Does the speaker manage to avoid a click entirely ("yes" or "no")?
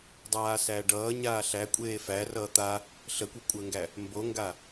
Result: yes